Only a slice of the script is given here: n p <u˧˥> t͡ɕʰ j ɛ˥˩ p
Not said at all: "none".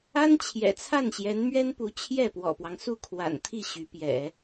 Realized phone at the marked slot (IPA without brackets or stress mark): u˧˥